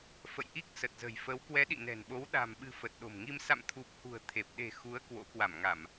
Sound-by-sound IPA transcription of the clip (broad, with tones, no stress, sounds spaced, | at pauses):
f ə̰˧˨ j ʔ i˦˥ k̚ s ə˨˩ t̚ z ə̤˨˩ j f ə˨˦ w k w ɛ˨˦ ɗ ḭ˧˨ n ɛ̤˨˩ n ɓ o˨˦ w ɗ a̤˨˩ m ɓ ɨ̤˨˩ f ə˨˩ t̚ ɗ o̤˨˩ m ŋ i˧ m s a̰˧˨ m t̪ʰ u˨˩ p̚ h ṳ˨˩ ə̯ t̪ʰ e˨˩ p̚ ɗ e̤˨˩ x u˨˦ ə̯ k w o̰˧˥ k w a˧˩ m ŋ a˧˩˨ m